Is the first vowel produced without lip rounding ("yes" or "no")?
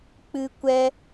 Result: yes